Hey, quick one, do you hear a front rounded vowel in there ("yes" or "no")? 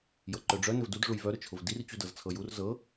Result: yes